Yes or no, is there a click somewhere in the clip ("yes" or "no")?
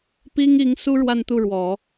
no